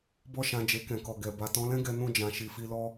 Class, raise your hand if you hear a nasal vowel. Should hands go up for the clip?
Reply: yes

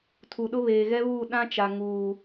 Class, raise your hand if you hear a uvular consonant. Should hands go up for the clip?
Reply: no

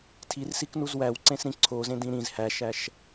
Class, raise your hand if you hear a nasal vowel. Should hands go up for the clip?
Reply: yes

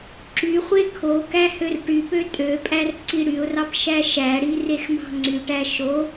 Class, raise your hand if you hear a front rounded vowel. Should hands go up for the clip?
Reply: yes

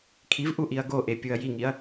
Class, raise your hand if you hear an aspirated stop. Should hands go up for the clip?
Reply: yes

